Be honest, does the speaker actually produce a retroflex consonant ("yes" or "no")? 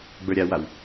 no